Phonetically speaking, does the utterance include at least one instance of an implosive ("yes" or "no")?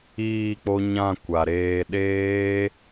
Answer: yes